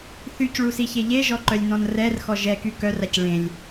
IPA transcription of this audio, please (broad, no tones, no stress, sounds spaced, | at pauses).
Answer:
θ y c ɭ u s i ç e ʎ e ʒ ɔ ǃ œ lʲ n ɔ̃ n r ɛ r x ɔ ʒ ɛ k y k œ r a c ɭ ẽ lʲ